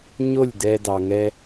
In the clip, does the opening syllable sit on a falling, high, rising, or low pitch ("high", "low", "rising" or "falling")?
falling